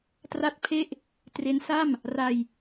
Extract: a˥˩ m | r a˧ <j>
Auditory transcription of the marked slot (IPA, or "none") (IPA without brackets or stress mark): j